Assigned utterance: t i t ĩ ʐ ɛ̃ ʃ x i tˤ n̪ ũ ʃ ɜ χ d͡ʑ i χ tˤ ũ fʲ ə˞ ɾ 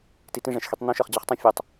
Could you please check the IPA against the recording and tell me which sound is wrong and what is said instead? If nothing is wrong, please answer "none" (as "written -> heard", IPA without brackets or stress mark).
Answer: ɾ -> tˤ